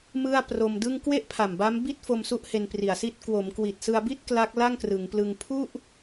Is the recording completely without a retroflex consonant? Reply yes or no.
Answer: yes